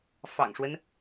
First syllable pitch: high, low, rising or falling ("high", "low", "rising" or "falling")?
low